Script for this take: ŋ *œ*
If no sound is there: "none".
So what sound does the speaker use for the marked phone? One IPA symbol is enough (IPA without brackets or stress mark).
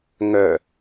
œ